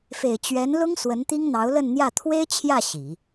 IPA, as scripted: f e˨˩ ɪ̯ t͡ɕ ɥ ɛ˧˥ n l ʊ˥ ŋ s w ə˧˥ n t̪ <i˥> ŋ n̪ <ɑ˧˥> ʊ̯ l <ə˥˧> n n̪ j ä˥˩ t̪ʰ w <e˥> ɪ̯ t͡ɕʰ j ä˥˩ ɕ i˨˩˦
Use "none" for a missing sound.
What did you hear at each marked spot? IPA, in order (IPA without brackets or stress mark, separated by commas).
i˥, ɑ˧˥, ə˥˧, e˥